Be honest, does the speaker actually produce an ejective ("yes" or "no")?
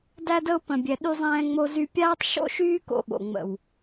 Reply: no